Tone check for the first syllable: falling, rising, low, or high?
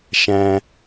low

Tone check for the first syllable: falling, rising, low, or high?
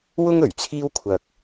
high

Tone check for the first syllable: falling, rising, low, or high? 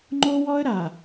high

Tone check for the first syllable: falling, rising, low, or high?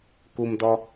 low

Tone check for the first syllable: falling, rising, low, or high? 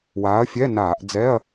rising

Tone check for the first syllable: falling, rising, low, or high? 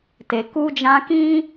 low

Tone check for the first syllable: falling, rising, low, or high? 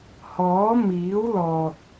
rising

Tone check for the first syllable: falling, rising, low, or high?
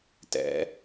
rising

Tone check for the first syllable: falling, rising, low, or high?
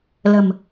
low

